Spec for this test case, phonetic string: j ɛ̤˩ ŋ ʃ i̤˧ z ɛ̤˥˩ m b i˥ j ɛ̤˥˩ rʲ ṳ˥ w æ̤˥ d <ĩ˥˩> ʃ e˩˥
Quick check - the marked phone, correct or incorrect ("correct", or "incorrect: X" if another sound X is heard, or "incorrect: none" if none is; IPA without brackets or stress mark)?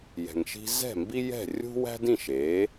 correct